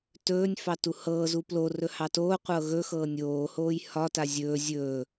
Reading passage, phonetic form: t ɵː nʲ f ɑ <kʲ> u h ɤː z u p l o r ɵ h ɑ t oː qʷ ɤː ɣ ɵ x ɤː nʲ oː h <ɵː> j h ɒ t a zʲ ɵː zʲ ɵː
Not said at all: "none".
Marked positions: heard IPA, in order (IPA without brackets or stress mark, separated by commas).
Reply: t, oː